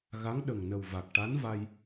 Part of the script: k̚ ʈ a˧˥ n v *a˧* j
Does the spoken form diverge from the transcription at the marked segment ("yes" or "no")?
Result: no